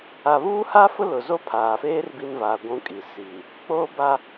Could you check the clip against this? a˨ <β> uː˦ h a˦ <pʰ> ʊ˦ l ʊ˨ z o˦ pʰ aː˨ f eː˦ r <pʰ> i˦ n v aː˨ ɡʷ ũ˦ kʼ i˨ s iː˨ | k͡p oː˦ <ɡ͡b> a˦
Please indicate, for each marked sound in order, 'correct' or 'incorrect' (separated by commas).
correct, incorrect, incorrect, incorrect